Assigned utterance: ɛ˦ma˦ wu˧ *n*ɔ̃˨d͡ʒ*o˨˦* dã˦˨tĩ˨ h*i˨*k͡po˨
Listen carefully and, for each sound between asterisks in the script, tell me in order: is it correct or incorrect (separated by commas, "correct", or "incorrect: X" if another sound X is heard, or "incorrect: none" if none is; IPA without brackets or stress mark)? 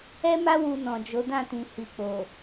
correct, correct, correct